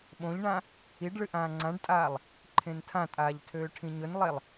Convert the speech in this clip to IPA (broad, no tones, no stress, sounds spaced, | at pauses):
ɓ õ ʎ ɳ ã | i ɖ ɭ ɨ ʔ ãː ŋ͡ǀ ã ɖ tʼ aː lˠ | ǃʰ ẽ n tʰ ã tʼ aː ʎ tʰ øː ʈʰ ĩ ɲ ɵ n lˠ e lˠ